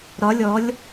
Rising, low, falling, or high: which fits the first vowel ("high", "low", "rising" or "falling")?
rising